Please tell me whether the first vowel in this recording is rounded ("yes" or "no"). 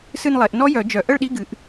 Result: no